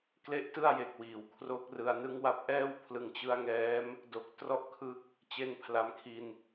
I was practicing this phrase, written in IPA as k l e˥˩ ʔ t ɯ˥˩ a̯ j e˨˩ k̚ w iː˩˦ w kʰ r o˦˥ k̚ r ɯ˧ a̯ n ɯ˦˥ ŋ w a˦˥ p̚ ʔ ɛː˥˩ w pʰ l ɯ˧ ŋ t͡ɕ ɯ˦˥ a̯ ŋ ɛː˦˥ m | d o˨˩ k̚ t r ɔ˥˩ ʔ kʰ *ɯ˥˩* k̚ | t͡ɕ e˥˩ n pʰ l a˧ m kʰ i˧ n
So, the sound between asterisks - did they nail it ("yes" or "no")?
no